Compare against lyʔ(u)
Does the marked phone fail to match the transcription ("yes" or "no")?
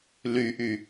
yes